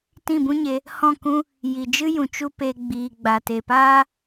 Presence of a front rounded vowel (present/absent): absent